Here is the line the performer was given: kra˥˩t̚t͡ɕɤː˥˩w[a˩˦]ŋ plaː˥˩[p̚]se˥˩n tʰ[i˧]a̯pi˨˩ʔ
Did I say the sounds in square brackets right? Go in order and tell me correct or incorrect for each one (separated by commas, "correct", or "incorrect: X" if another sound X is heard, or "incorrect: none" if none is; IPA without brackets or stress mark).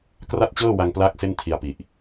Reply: incorrect: a˧, incorrect: k̚, correct